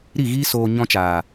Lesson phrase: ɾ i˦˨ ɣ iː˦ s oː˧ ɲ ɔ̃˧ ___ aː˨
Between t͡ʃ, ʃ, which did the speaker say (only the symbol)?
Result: t͡ʃ